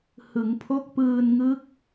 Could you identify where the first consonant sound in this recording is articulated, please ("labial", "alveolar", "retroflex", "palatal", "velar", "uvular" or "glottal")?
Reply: glottal